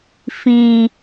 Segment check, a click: absent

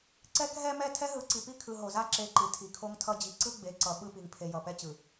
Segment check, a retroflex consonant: absent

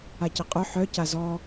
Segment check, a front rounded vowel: present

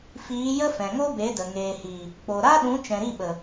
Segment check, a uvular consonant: absent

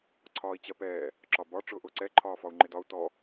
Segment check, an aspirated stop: present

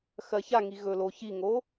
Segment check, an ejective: absent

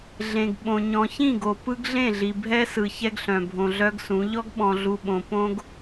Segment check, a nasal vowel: present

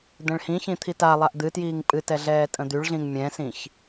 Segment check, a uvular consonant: absent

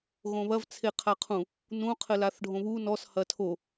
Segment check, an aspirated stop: present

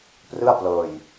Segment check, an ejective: absent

